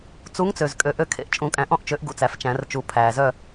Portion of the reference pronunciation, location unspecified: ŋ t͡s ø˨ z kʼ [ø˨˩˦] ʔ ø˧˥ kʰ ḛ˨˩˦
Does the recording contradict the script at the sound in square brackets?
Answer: yes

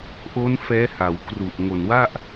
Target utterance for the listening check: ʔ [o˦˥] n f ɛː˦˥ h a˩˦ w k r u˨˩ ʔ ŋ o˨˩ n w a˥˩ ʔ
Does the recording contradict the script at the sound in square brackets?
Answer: no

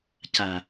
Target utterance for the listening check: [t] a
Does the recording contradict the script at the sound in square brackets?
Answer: yes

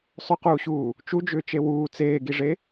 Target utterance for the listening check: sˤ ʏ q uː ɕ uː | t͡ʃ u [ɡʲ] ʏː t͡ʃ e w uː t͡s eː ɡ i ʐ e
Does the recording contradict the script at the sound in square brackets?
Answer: yes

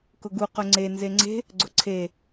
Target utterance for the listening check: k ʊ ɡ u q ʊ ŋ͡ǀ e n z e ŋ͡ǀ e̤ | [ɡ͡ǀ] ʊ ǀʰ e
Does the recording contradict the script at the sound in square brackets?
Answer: no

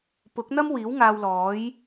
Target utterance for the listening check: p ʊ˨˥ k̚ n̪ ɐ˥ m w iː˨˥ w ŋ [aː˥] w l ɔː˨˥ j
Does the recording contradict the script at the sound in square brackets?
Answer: yes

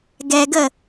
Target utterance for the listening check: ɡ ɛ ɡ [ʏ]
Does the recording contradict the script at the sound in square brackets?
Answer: yes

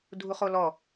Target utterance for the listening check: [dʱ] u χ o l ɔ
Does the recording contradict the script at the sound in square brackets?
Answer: no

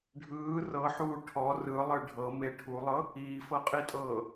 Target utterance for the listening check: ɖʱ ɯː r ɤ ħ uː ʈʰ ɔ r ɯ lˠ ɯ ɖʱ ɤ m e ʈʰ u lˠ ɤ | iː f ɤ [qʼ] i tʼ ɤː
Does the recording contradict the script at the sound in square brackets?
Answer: no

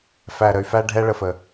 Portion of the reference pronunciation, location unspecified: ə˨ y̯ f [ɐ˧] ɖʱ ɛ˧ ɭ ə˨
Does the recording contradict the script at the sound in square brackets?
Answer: yes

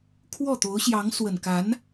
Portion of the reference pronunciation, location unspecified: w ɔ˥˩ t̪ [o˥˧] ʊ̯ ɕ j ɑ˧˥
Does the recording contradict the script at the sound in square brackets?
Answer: yes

